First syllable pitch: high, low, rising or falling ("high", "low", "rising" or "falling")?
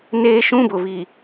high